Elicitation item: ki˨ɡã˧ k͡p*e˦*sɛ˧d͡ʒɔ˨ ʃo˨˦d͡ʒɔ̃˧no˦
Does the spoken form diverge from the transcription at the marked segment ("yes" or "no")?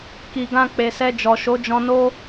yes